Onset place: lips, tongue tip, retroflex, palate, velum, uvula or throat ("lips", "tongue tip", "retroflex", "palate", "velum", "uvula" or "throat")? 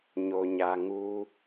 palate